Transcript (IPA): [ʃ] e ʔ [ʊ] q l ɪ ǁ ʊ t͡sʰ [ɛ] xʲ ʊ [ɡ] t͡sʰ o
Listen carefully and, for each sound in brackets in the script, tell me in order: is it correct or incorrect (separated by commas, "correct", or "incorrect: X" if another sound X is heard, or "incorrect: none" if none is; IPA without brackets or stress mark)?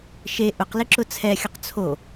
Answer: correct, correct, correct, incorrect: q